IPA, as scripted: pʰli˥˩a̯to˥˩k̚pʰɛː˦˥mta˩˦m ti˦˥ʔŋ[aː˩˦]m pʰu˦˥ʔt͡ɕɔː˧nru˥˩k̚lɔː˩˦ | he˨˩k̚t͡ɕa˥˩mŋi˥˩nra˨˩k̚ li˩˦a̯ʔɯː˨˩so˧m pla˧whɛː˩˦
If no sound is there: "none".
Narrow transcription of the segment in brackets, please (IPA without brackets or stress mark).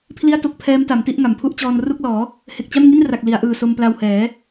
a˩˦